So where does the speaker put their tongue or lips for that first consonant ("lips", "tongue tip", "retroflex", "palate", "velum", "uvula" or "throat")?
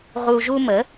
uvula